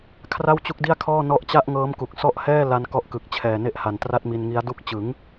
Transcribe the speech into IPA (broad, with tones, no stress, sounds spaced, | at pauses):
kʰ r a˥˩ w t͡ɕ u˦˥ k̚ d i˥˩ a̯ kʰ ɔː˥˩ n ɔ˦˥ ʔ t͡ɕ a˥˩ ʔ ŋ ɤː˦˥ m k u˨˩ k̚ s ɔ˦˥ ʔ h ɛː˥˩ l a˧ n k ɔ˦˥ ʔ k ɯ˨˩ k̚ t͡ɕʰ ɛː˨˩ n e˦˥ ʔ h a˨˩ n t r a˥˩ t̚ m i˧ n ŋ i˦˥ a̯ d u˥˩ k̚ t͡ɕ ɯ˩˦ ŋ